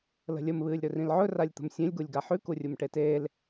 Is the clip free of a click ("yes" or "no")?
yes